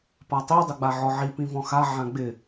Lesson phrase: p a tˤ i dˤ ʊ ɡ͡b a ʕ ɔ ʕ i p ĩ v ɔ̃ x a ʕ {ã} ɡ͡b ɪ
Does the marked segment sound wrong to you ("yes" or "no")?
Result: no